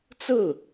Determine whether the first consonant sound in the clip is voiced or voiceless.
voiceless